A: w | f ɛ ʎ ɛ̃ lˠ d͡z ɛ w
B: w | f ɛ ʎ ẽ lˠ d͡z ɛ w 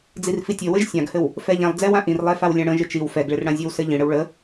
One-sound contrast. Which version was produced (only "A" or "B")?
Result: A